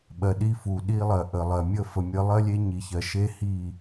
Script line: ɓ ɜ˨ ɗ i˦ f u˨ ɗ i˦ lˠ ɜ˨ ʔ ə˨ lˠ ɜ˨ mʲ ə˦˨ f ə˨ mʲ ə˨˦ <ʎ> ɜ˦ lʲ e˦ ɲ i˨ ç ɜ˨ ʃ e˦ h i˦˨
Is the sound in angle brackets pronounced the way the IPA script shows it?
no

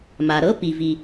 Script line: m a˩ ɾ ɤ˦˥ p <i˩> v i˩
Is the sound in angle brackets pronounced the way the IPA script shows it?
yes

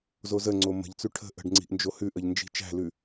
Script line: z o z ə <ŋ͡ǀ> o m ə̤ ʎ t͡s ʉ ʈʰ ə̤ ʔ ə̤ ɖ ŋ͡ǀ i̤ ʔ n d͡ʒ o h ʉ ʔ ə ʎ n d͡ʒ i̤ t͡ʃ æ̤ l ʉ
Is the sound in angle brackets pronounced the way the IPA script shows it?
yes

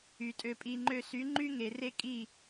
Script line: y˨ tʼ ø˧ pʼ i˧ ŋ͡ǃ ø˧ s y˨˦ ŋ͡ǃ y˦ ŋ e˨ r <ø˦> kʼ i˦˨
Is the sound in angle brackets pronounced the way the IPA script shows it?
no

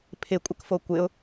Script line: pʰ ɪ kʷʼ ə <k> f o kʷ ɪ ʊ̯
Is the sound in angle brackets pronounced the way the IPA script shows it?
yes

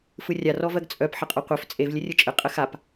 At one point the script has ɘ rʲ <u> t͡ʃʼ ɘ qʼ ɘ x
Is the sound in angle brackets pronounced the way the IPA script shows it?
no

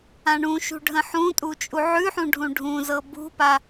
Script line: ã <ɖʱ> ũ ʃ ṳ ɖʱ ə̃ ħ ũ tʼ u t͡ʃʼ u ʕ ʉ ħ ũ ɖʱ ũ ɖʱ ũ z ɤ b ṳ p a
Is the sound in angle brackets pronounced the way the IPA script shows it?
no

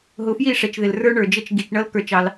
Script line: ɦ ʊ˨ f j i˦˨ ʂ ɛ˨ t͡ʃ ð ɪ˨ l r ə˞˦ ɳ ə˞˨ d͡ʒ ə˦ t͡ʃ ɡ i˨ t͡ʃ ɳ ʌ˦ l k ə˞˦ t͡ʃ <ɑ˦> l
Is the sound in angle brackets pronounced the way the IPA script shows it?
yes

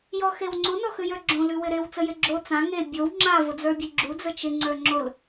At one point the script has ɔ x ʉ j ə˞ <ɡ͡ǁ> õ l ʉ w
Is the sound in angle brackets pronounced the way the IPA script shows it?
yes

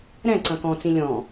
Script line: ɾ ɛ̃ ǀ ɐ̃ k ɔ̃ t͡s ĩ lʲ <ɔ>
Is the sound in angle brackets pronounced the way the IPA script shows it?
no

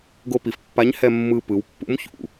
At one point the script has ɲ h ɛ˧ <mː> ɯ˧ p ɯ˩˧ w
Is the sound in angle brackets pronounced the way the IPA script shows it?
yes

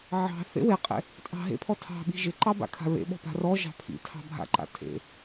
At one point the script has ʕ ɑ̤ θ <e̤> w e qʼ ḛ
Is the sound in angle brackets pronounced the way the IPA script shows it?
no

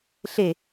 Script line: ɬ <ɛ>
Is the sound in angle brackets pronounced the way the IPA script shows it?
no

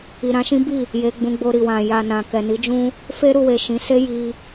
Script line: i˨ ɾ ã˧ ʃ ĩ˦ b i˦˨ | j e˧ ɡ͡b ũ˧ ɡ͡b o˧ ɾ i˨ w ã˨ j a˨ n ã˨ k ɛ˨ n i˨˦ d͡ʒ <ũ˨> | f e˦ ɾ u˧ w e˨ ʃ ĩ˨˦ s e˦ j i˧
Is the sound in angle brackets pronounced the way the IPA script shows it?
no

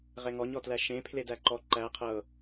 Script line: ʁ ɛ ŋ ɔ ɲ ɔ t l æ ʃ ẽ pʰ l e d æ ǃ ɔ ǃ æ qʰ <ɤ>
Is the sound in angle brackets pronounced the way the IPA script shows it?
yes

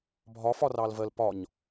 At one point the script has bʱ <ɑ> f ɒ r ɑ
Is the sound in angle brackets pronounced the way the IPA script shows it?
no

